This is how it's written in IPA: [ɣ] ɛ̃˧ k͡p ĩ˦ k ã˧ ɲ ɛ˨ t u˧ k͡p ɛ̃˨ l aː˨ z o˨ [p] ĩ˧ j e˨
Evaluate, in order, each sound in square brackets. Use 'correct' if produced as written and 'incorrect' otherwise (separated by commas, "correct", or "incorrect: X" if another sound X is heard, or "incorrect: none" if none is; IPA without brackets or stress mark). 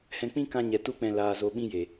incorrect: h, incorrect: ɓ